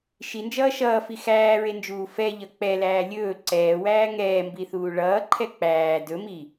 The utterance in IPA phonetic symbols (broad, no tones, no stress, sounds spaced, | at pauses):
ʃ i n d͡ʒ ʌː ʃ ʌː f i x æː ɹ e n d͡ʒ uː f ɛ ʎ ʌ k͡p ɛ l æː lʲ ɵː ǀ ɛː w æː ŋ ɛː m b i θ uː ɭ ʌː ǃʰ ɛ k͡p æː d ɵ m i